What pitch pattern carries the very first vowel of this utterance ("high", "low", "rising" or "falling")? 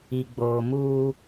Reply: low